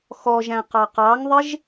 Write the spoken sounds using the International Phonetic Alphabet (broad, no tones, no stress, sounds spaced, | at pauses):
x ɔ ʒ æ̃ q ɑ q ɑ ŋ ðˤ ɪ ʒ